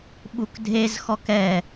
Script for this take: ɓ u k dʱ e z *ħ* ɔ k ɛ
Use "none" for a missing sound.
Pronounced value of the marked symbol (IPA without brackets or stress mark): x